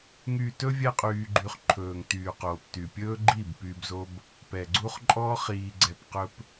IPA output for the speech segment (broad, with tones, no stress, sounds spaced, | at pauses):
ŋ yː˨ t ɵ˦ vʲ ɛ˦ qʼ yː˧ ɡ͡ǃ y˧ χ ǃʰ ɵː˨ ŋ t yː˨ q oː˨ p t y˨ pʲ ɵː˦ ɡ͡ǃ i˦˨ b p yː˧ b z o˦ b | p ɛ˨ ɡ͡ǀ u˦ χ ǃʼ ɔ˦ χ iː˧ ɡ͡ǀ ɛ˧ p q ɵ˧ p